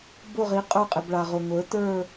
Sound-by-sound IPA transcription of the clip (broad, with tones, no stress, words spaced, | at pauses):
bʊ˦˨ʁi˨˥ qʼə˞˦˨qʼɪ˨b ɭa˨ʁʊ˨ ŋʷə˞˨˥ tə˞˦˨